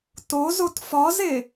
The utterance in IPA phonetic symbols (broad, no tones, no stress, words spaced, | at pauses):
tozot fɒze